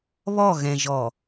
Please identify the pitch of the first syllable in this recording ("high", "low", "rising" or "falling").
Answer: falling